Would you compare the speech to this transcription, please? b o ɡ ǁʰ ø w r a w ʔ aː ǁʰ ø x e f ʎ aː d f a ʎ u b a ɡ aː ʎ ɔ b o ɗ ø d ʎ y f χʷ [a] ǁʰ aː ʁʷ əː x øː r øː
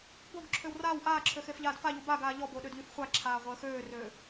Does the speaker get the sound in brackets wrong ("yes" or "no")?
no